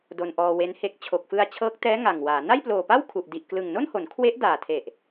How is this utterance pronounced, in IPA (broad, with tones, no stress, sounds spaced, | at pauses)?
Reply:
d o˧ n ʔ ɔː˧ w e˦˥ n h e˦˥ k̚ t͡ɕʰ o˨˩ k̚ f ɯ˧ a̯ t͡ɕʰ ɤː˦˥ k̚ t ɛː˦˥ ŋ a˨˩ ŋ w aː˩˦ n a˥˩ j p l oː˨˩ p a˥˩ w kʰ u˨˩ ʔ d i˨˩ ʔ k l ɯ˨˩ ŋ n o˥˩ n h o˩˦ n kʰ w e˦˥ ʔ d aː˨˩ tʰ e˨˩ ʔ